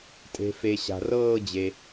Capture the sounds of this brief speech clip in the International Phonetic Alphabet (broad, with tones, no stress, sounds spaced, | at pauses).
tʼ e̤˩ f e˩ ɕ a̤˩ r ɤː˦˨ d͡ʑ e˩